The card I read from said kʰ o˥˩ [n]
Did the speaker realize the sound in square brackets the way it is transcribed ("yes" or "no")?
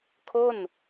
yes